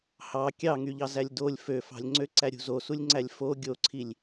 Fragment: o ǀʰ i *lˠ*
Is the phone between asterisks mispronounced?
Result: yes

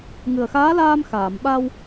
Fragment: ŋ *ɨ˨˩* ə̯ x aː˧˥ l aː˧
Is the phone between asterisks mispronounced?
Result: no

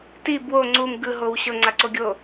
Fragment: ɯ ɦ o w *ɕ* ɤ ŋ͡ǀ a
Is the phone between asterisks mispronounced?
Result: no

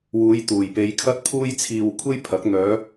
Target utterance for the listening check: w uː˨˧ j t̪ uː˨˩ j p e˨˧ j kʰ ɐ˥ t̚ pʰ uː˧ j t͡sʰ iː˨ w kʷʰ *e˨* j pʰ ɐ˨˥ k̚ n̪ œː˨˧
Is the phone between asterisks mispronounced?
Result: yes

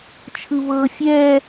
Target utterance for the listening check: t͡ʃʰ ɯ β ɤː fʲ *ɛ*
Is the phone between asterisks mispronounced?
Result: no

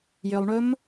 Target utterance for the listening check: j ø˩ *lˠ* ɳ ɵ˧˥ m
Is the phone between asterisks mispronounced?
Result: no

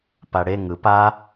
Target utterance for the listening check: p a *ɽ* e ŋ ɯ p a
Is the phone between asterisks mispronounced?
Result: no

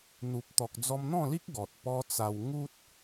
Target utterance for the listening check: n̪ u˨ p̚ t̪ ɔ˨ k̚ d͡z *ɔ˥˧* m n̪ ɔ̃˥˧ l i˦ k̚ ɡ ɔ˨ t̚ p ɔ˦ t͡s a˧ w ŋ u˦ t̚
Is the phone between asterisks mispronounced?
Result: yes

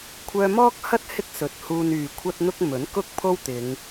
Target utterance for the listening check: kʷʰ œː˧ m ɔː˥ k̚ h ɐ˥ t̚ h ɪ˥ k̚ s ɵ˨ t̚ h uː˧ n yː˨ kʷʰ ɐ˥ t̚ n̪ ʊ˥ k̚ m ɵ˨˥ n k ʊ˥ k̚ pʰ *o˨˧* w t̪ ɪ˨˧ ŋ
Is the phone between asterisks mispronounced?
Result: yes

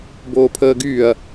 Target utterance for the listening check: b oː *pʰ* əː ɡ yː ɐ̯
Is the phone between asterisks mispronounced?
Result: no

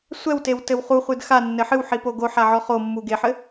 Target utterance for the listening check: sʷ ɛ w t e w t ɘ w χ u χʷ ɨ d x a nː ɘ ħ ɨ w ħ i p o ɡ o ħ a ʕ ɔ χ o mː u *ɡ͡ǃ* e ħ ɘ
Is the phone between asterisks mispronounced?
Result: yes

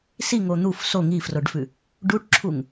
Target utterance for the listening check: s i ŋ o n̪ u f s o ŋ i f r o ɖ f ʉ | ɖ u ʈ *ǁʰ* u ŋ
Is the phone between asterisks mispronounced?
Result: no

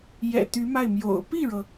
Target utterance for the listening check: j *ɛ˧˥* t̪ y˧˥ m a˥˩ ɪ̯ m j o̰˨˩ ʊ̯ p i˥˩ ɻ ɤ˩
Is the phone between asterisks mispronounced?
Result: yes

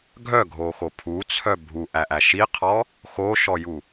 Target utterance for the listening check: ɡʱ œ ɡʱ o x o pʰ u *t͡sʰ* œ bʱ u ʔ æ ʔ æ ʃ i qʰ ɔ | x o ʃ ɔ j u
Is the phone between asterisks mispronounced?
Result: no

